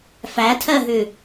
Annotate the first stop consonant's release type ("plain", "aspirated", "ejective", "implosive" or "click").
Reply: aspirated